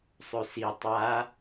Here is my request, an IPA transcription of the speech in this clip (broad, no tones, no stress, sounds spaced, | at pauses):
sˤ ø s i tˤ a